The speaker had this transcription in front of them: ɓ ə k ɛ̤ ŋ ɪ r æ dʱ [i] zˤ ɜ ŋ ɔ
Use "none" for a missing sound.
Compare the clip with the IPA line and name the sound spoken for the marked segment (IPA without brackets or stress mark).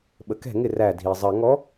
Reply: i